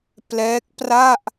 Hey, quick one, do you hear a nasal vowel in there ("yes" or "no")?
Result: no